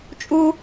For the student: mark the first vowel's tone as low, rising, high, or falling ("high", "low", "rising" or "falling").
high